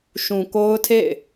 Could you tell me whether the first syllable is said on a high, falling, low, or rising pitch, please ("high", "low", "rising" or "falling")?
low